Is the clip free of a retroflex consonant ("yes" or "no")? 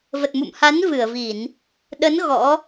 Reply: yes